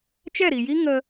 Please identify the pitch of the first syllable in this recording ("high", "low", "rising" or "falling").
falling